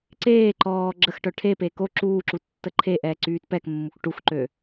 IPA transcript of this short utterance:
ǀeː ǃɔː ɡ͡ǁəx ʈœʈʰeːpeː ko ǁuːǁu tːəǃʰeʔɛː ǀyːtpɛkmːuk ʈuxǃø

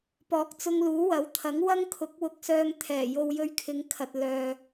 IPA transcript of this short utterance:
pɔː˨˥k̚t͡sʊ˧ŋluː˨˥ wɐ˨˥wt̪ʰɐ˨˥ŋ wɐ˥ŋkʰʊ˨˥k̚wʊ˧k̚sœː˧ŋ t̪ʰɛː˨˩jo˧w jɵ˧ɥkʰɪ˨˧ŋkʰɐ˨t̚ lœː˨

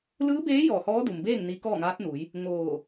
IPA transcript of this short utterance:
lɯː˧˥beː˧˥ jɔː˧˩hɔː˧˥du˩mbeː˥˨ŋ ni˧˥ kɔː˥˨ŋaː˧˥t̚nu˩˧j | ŋoː˧˩

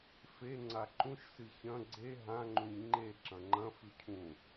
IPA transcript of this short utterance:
fe ŋ͡ǀaǃũʃsɨ çɐ̃ ɡ͡ǀe ɦãŋ͡ǃũɲ ŋ͡ǃe ǁɐ̃ŋ͡ǃɐ̃fʉ cʰũ

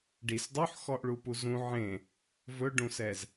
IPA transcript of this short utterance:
ɖis dˤoħxɔʔɭupu zũ ʕẽ | vɵɖũsɛz

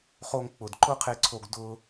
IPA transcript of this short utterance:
χo˧ŋk͡pʊ˨d ǃʊ˦qʰe˧ǀʰo˧ɡ dʊː˧

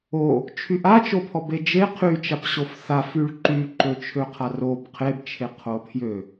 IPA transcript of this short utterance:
o | t͡ʃʰyʔat͡ʃopʰɔ bed͡ʒe qʰyt͡ʃapɕof θaf yɭǃyǃøt͡ʃʰø qʰarob qʰebt͡ʃʰe qʰopʰjø

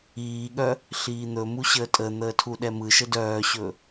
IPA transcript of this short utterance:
iːɠœ | ɬiːn̪ɵmu ɕəːtʼən̪əː tʰuɗɛmɯʃə dœːɕɵ

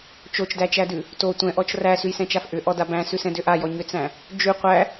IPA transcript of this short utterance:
t͡ʃot͡ʃdæt͡ʃædʉ | to tʷɛ̃ʔɔt͡ʃ ræsʉjsɛ̃t͡ʃaf ʔʏʔɔda bæ̃sʉsɛ̃dʏ ʔajɔ ɲʏt͡sæ̃ | d͡ʒʉ qʷæ

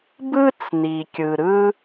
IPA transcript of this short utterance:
bɯ˥t͡s ni˩kʲɯ˩ ɾɯ˥

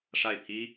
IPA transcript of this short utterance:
ʂa˥˩ɪ̯pʰi˥

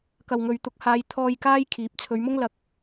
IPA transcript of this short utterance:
kɐ˨wŋɵ˨ɥt̪ʊ˨˥k̚ haː˨˧jt̪ʰɔː˧j kaː˥jkʰiː˨˥p̚ t͡sʰɵ˨˧ɥmʊ˥ŋ lɐ˧k̚

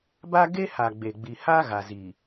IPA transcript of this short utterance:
ba˦ ɡe˦ ha˨ɡ͡be˨ɡ͡bi˨ ha˦ ɣa˨zi˨

